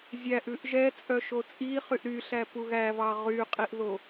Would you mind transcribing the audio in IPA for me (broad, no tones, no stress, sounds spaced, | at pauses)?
zʲ æ ʔ ʉ ʔ ʒ ɛ t͡sʼ œ ʃ o t͡sʼ i χ y ʔ ɾ y ɬ æ p u ɣ æ v ɑ ʁ y qʼ i ʔ ð o